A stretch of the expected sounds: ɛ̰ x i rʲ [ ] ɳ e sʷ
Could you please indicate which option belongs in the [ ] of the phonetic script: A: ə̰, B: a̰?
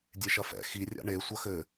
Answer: B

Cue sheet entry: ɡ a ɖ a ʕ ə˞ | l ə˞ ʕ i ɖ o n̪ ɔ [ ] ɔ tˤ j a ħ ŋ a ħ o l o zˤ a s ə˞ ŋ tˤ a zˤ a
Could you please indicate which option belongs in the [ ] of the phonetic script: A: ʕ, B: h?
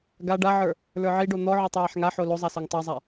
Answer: A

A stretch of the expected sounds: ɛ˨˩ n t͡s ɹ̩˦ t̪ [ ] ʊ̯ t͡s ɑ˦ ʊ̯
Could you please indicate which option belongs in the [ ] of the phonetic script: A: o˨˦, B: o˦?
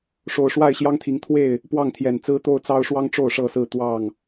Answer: B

